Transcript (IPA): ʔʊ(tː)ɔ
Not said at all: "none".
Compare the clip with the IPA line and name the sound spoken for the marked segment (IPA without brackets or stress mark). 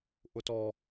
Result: t